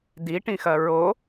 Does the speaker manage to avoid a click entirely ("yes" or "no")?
yes